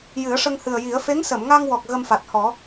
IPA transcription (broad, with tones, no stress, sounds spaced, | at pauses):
j ɨ˨˩˦ ə̯ ʂ ə˧ ŋ h ɨ˨˩ ə̯ j i˨˩˦ ə̯ f e˧˥ ŋ s ə˨˩˨ m ŋ a˧ ŋ w ɔ˨˩ k̚ ɣ ə˧ m f a˨˩ t̚ h ɔ˨˩˦